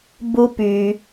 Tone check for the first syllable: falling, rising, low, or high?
high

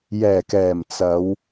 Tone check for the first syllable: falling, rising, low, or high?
low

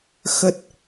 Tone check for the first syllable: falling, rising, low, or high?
low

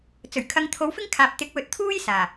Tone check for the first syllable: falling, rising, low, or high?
low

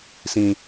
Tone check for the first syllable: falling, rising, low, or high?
low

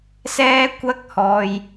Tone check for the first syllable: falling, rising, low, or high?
high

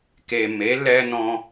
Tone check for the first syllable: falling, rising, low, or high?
low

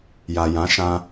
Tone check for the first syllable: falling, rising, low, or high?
low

